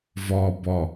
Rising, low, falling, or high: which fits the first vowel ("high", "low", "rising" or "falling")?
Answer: low